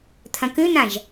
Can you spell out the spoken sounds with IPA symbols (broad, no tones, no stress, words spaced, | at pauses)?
t̪ʰɐ̃kʉn̪ãʒ